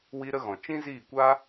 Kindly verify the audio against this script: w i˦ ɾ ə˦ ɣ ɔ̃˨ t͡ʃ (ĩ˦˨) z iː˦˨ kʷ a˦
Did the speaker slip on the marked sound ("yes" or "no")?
yes